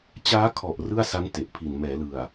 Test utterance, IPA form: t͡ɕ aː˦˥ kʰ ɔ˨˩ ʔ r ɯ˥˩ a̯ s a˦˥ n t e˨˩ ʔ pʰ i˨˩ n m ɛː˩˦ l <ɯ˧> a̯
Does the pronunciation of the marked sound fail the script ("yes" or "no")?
yes